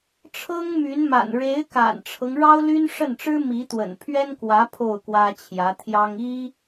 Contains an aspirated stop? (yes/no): yes